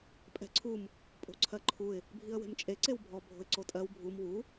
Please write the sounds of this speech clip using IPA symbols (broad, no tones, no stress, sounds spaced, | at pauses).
pʼ ɛ̤ ǀʰ u m | pʼ o̤ ǀʰ ɜ ǃʰ u ɪ̯ | bʱ i ə̯ w e̤ m t͡ʃʼ e ǀ e w bʱ ɔ bʱ o̤ ɪ̯ ǀ o tʼ ɜ w bʱ u m w u